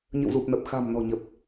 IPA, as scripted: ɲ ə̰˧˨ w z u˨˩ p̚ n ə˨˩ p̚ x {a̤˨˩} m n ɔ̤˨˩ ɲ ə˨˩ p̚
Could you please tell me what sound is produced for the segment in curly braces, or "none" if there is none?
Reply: a̤˨˩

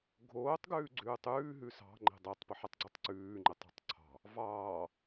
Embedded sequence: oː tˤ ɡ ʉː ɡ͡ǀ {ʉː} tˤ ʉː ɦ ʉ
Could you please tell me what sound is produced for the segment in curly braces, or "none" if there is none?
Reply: ʉː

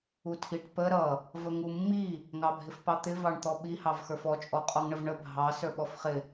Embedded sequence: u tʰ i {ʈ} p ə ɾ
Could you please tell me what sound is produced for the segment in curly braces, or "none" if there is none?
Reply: ʈ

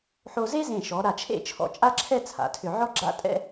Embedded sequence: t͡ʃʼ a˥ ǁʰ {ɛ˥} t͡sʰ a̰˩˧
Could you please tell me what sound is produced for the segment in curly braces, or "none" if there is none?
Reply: ɛ˥˧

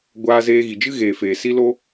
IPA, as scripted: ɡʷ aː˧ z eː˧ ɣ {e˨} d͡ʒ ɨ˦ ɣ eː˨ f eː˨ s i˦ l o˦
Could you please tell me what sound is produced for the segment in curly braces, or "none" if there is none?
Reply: i˨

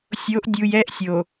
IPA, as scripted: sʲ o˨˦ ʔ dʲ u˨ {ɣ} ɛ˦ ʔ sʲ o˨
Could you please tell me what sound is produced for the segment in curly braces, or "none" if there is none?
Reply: j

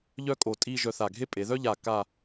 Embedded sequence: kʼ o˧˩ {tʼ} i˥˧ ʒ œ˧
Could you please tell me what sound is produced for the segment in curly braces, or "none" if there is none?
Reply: tʼ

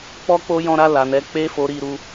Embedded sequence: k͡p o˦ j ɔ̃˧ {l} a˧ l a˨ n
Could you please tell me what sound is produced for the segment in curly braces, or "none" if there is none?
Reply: ɾ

